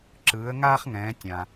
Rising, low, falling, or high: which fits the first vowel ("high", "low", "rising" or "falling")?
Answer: rising